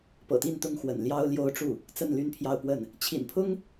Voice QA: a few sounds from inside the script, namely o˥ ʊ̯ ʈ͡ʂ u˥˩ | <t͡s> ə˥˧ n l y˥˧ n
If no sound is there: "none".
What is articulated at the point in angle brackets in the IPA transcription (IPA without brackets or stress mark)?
t͡s